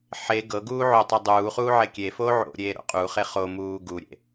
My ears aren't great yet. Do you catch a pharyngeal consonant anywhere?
yes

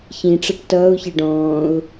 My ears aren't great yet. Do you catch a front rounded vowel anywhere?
no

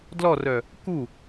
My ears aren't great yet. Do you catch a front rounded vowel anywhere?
yes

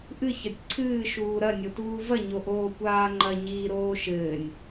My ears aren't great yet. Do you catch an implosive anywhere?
no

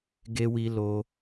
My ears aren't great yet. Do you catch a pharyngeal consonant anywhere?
no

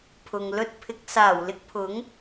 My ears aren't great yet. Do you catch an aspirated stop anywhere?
yes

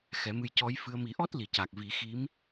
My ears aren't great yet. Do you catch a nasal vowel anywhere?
no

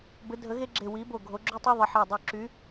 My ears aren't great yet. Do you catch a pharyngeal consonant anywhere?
yes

